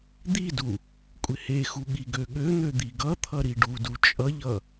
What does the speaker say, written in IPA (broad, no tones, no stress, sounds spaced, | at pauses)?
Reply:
d̪ i d u | kʷʼ ɪ h e x u ɠ i ɡ ø ɠ ø n̪ ø d̪ i ɡ ʌ t̪ʰ ʌ ɾ i ɖ u d u t͡ʃʼ ʌ ʎ ʌ